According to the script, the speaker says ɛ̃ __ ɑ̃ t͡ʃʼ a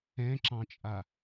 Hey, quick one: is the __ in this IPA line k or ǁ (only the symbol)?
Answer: ǁ